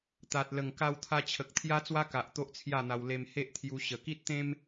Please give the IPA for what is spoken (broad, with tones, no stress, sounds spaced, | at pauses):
t̪ a˨ t̚ l ə˨˩ ŋ k a˧ w t̪ʰ a˧ t͡ɕʰ ə˨ k̚ t̪ʰ j a˦ t͡s w a˦ k a˨ ʔ t̪ o˦ ʔ t͡sʰ j a˥˧ n̪ a˧ w l e˧ m h e˦ ʔ t̪ʰ j u˧ ɕ ə˨˩ k i˦ t̚ t̪ ẽ˦ m